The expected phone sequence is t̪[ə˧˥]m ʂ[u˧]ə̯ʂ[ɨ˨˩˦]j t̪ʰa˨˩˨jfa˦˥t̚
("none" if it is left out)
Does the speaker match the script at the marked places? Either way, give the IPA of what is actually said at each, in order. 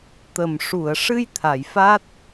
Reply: ə˨˩, u˨˩˨, ɨ˧

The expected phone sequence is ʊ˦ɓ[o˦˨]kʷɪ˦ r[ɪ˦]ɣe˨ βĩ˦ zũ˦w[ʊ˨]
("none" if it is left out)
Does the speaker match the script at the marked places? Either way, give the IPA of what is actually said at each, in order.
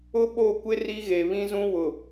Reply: o˦˨, i˦, ʊ˨

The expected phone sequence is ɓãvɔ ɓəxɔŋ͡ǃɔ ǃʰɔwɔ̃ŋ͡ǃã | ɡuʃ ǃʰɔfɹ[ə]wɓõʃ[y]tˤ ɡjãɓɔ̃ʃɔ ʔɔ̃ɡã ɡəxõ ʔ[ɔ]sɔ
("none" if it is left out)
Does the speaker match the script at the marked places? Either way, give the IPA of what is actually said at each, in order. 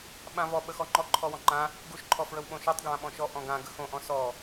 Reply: ə, y, ɔ̃

